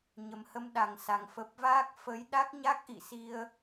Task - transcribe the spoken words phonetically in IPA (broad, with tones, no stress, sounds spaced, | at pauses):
ɲ ə˨˩ m h ə˧ m ɗ a˨˩ ŋ s a˨˩ ŋ f ə˨˩ p̚ v aː˦˥ k̚ f ə˨˦ j ɗ a˦˥ k̚ ɲ a˦˥ k̚ ʔ ḭ˧˨ s i˧ ə̯